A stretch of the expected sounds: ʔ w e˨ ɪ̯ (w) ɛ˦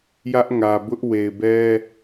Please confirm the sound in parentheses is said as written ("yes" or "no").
no